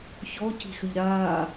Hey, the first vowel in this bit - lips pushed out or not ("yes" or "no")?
yes